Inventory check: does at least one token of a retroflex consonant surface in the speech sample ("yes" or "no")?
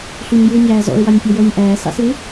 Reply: no